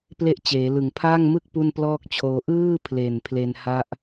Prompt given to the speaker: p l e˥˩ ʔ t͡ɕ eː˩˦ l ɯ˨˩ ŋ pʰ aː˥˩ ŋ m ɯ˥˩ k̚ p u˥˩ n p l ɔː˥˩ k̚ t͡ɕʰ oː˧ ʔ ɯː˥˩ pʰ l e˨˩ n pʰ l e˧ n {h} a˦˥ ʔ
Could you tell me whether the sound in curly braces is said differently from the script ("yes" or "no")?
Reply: no